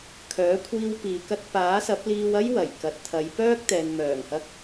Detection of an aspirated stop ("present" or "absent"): present